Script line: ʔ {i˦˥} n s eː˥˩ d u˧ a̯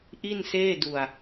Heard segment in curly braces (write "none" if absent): i˥˩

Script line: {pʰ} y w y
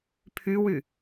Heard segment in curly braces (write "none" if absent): pʰ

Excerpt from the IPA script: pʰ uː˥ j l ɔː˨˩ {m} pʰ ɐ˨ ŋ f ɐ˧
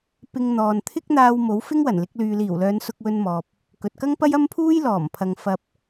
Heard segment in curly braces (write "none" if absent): m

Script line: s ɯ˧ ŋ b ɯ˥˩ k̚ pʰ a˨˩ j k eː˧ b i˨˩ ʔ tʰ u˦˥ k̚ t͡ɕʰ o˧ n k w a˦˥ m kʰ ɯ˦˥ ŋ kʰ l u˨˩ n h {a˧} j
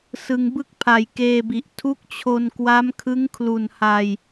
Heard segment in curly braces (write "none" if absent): a˧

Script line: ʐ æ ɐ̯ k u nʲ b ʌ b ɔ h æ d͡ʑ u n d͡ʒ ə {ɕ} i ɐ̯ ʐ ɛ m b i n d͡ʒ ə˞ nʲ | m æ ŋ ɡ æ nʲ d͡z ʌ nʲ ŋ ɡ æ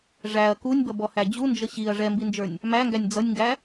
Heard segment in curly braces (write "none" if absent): ɕ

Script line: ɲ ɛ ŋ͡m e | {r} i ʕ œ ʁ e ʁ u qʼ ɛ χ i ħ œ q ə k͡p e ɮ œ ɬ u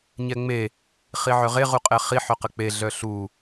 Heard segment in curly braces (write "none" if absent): χ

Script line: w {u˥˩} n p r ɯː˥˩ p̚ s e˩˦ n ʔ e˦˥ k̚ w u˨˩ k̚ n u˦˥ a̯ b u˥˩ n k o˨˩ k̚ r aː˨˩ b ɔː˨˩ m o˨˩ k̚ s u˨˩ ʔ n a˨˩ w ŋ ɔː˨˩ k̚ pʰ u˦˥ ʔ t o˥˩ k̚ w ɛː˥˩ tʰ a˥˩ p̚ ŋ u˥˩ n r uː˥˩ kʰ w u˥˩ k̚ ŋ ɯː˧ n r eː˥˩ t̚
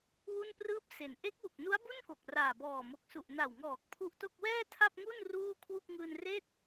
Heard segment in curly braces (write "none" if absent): u˥˩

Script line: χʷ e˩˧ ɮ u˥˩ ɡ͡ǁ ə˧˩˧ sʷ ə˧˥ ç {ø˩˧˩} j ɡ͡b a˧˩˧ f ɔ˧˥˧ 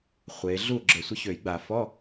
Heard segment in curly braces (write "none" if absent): ø˧˩˧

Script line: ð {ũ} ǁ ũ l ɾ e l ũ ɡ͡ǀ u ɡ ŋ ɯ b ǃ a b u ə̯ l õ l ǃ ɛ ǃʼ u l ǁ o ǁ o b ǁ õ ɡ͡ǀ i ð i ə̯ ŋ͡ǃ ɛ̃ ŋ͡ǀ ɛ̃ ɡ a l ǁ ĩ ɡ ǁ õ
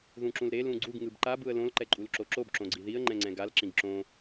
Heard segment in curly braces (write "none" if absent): ũ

